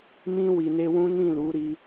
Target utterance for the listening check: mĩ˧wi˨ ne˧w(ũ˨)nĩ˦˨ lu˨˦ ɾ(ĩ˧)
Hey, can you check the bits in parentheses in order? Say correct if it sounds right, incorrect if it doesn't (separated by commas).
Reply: incorrect, incorrect